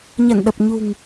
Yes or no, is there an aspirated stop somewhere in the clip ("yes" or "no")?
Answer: no